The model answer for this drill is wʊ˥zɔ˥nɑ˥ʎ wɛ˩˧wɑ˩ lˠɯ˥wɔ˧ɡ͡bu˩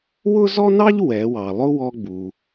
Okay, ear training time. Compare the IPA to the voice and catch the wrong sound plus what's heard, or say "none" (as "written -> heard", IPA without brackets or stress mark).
ɯ˥ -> ʊ˥